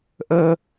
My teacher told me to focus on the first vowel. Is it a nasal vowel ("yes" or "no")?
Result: no